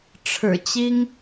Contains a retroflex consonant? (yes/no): yes